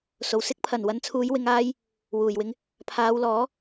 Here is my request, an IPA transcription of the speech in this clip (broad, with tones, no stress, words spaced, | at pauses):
so˨˩wsɪ˥k̚ pʰɐ˨˩nwɐ˨˧nt͡sʰuː˨˧j wɪ˧ŋaː˥j | wuː˨˩jwɪ˧ŋ | pʰaː˨˧wlɔː˨˥